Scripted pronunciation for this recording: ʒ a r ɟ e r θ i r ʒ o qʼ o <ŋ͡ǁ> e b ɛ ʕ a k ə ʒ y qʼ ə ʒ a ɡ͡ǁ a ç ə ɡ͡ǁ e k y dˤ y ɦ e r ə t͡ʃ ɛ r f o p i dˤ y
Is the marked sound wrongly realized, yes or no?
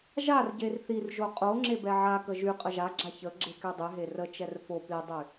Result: no